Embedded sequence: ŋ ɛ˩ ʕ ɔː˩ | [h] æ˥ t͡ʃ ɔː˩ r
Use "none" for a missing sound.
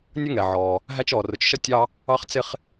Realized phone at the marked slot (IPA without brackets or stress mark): ɦ